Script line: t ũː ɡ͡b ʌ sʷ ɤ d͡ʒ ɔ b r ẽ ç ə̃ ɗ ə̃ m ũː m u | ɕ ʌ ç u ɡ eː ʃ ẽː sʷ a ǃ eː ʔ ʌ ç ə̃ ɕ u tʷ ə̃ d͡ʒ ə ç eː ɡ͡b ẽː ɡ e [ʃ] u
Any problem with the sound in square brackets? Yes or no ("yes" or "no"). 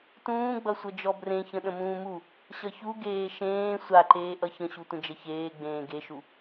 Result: no